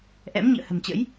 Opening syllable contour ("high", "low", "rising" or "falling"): rising